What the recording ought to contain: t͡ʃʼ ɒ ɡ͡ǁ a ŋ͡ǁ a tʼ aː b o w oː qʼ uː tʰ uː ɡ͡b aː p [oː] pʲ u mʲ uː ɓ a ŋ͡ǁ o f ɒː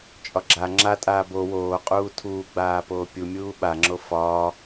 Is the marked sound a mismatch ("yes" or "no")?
no